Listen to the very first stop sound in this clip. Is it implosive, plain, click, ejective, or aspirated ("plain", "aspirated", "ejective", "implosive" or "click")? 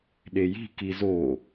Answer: implosive